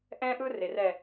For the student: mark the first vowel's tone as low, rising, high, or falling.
high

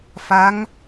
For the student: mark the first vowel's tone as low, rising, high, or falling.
rising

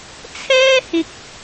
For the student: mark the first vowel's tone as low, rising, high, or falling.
high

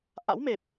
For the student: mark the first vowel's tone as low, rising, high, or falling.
rising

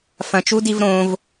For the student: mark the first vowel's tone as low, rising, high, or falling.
low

